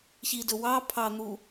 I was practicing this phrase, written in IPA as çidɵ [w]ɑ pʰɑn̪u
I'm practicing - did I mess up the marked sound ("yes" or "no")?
no